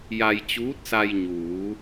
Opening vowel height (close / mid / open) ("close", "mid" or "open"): open